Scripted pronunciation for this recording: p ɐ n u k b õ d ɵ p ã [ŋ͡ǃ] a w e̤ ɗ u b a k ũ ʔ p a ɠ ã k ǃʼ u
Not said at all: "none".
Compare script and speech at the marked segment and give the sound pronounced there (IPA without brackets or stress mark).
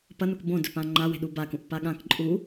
ŋ͡ǃ